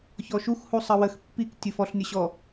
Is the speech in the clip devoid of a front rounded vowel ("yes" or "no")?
yes